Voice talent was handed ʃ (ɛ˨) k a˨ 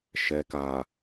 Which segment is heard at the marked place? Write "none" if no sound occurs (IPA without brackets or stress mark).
ɛ˨